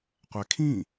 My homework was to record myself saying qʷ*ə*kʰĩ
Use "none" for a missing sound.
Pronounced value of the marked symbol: æ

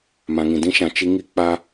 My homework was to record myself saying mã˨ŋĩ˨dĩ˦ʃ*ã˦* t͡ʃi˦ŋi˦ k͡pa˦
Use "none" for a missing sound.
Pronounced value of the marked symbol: ã˨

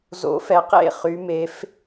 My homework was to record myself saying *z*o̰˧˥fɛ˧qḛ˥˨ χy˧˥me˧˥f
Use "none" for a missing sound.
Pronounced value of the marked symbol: z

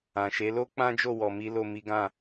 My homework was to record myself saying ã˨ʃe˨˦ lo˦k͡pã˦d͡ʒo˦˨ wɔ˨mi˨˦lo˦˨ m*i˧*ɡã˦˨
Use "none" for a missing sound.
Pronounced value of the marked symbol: i˨˦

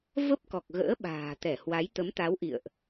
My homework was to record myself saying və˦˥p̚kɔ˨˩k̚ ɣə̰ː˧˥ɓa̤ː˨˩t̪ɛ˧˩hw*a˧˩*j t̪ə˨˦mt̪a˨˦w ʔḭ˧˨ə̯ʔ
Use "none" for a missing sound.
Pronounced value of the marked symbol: a˨˦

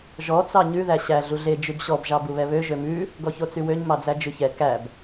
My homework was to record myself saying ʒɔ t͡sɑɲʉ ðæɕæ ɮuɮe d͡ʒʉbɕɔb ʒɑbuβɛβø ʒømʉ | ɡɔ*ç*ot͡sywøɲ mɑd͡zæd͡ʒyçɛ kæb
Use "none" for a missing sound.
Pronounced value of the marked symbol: ç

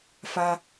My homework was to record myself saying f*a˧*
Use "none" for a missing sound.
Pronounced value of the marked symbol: a˧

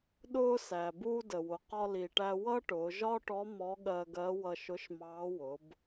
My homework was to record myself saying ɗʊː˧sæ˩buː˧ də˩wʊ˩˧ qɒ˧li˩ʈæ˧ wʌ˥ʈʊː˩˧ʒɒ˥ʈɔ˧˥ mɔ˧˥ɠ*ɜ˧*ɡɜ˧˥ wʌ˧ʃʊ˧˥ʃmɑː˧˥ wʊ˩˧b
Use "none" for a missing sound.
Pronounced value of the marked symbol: ɜ˧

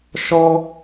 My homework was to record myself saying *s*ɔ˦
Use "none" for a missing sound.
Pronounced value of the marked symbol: ʃ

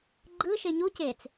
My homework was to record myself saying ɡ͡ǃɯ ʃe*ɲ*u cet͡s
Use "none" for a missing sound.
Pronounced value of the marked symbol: ɲ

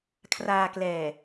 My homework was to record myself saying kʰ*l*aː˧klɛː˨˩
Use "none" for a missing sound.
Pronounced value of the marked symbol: r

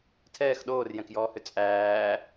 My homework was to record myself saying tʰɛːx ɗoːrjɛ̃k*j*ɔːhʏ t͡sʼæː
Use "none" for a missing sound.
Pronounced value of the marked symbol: j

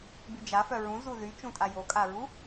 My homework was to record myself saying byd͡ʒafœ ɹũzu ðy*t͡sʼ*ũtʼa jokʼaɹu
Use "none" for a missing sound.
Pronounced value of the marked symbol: t͡ʃ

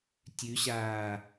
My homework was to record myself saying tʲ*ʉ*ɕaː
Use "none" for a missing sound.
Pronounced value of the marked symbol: ʉ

